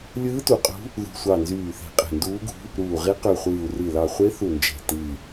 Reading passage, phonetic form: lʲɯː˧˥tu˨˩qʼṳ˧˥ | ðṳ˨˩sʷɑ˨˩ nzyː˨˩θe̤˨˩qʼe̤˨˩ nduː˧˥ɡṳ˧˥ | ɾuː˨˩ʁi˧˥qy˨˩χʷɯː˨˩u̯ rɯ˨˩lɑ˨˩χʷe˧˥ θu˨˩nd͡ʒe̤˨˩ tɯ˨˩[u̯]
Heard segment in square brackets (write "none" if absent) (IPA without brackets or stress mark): i̯